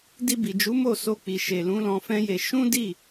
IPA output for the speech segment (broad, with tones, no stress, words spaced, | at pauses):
di˧bi˨d͡ʒu˨˦ mo˦˨so˧k͡pi˨ ʃe˨lũ˨˦ lɔ̃˧fɛ̃˦je˧ ʃũ˦di˦˨